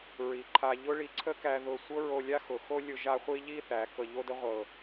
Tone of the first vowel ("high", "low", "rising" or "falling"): low